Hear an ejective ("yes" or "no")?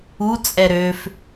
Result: yes